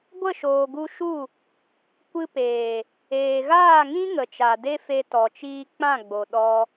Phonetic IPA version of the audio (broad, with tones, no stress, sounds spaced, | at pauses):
ɡʷ ə˦˨ ʃ oː˨ ɡ u˧ ʃ u˦˨ | kʷ ɨ˧ p eː˨ | eː˨ ɣ aː˦˨ ŋ ĩ˦ ŋ ə˨ t͡ʃ a˨ d e˦ f e˧ t ɔ˨ t͡ʃ iː˧ k͡p ã˦˨ ɡ͡b o˨ ɗ ɔ˦